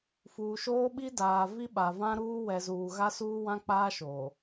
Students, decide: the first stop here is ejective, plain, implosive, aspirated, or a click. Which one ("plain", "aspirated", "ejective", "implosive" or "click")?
implosive